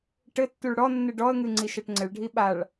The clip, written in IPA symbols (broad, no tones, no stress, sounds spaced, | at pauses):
ʈ ɘ tː u ɭ ɽ ɔ nː ɨ ɖ ɔ ə̯ ŋ ɨ ŋ͡ǀ i ʃ ɛ ʈ ŋ͡ǀ ɘ ɭ ɖʱ i ɓ a ɭ